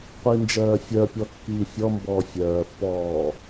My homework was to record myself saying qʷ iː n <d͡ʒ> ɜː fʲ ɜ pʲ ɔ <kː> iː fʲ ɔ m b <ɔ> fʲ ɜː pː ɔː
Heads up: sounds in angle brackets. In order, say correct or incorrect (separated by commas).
correct, correct, incorrect